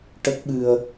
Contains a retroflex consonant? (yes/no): yes